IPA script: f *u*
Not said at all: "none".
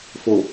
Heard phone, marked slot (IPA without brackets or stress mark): o